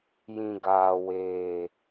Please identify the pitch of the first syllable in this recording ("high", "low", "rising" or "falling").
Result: low